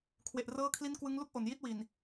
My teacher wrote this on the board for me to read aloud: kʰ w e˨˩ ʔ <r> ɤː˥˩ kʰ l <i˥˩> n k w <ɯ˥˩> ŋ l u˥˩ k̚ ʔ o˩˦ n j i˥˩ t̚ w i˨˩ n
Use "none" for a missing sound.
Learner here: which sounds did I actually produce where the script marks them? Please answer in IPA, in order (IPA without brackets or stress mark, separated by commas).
r, i˥˩, ɯ˦˥